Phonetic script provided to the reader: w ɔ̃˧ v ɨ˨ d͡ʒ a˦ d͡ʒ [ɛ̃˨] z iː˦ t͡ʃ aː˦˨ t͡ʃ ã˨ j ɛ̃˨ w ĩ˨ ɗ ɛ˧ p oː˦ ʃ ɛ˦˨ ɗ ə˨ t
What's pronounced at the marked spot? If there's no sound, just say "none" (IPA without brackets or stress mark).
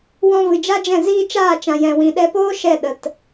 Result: ɛ̃˦˨